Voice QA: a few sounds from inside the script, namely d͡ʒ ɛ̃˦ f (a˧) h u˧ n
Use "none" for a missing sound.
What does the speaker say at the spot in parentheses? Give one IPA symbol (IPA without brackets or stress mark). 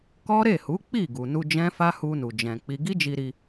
a˦